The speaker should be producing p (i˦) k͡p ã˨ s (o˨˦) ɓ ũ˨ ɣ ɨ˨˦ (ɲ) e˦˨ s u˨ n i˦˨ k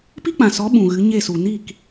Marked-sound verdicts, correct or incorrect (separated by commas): correct, incorrect, correct